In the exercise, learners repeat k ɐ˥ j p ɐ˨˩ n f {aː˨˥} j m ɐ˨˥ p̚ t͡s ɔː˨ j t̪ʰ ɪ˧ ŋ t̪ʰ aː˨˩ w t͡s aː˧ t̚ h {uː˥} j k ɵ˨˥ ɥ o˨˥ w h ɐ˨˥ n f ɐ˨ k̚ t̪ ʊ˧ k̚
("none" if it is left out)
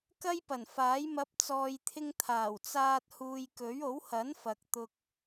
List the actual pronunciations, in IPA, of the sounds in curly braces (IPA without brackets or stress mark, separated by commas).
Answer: aː˨˥, uː˨